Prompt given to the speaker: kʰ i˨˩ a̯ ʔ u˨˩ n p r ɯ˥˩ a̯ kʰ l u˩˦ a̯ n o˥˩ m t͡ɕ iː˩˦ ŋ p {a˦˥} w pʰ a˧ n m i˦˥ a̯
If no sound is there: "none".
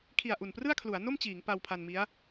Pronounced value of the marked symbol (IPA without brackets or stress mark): a˧